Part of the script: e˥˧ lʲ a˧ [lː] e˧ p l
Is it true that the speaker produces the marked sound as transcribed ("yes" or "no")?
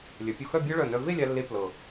yes